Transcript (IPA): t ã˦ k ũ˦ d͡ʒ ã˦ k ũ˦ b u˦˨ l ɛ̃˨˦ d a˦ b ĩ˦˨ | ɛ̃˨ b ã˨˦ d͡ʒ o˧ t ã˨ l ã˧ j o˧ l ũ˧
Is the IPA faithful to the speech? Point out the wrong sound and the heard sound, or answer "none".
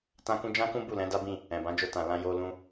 none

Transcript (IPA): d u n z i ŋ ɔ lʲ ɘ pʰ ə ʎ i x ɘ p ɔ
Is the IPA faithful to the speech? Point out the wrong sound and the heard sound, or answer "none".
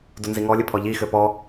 ə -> ɔ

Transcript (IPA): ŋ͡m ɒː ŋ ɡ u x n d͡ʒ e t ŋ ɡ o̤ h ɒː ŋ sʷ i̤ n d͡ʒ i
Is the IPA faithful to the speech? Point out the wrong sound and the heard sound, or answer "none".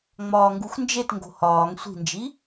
none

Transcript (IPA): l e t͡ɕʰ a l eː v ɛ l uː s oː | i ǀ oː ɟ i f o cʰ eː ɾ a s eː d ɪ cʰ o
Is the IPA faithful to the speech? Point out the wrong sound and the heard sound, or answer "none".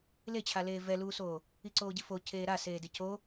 none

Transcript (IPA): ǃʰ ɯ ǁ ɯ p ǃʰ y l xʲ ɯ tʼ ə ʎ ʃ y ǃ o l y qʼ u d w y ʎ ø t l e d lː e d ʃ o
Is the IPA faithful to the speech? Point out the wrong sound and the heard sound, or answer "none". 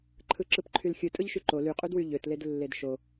ə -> ɯ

